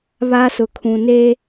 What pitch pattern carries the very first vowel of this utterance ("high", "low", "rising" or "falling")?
high